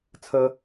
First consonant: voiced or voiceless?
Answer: voiceless